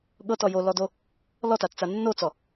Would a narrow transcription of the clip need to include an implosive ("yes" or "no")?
yes